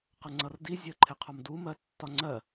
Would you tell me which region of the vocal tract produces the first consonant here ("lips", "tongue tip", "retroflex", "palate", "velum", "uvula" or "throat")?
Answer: uvula